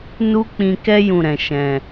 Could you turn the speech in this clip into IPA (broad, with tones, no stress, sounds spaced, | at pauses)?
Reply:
n u˦ k͡p ĩ˧ k ɛ˦ j ũ˦˨ ɾ ɛ̃˨ ʃ ɛ̃˨